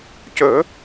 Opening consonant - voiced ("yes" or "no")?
no